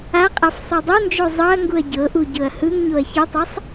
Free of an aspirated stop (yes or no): yes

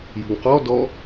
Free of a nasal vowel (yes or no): yes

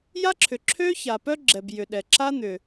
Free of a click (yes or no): no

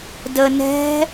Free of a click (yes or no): yes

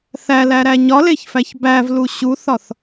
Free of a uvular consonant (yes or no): yes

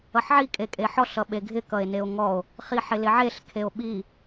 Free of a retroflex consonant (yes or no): yes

